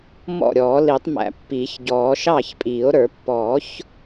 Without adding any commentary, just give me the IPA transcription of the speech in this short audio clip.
mɔ̰˥˩ɾʲɔː˨˩˦li˨˩˦tˤ mæ̰˨˩˦ pːiː˨˩˦çɟɔː˨˩˦ ʃɑ˥˩çpʼiː˨˩˦o̯ ɾə˞˨˩˦pːɔ˨˩˦ç

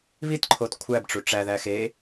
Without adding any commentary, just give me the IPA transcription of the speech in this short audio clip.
βitǃʰot kʷʰæbʈ͡ʂu ʈ͡ʂæðæ xe

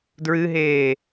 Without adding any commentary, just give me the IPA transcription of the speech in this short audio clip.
dɹɨɦeː

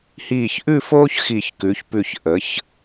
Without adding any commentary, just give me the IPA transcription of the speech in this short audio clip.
hiː˧˩çʔʉ˥˧foː˥ç xi˧˩çkʉ˩˧çpʉ˧˩ç ʔə˩˧ç

